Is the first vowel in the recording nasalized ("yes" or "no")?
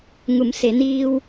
no